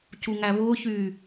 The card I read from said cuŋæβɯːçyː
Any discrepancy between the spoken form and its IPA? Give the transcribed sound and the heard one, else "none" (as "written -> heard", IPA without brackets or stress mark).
ɯː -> ʊː